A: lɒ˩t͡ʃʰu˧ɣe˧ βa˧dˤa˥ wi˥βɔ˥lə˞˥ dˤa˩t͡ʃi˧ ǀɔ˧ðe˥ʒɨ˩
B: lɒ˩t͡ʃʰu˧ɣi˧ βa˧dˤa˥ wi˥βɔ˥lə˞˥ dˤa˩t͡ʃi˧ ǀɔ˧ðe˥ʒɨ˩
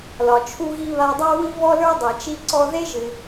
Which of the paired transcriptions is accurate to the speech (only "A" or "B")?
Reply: B